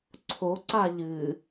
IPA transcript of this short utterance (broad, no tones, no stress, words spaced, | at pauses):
ǀʰo ǀaʎɨ